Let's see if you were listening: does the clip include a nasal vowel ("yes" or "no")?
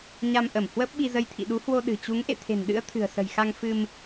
no